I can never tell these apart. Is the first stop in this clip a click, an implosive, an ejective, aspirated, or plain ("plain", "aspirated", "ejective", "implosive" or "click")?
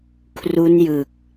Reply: aspirated